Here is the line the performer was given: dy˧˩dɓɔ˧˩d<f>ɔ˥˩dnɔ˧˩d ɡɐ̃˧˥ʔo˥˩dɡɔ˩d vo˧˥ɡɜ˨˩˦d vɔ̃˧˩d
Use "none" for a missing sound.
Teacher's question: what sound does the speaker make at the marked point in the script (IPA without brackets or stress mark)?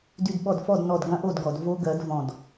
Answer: f